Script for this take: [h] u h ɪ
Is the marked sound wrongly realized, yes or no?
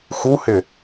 yes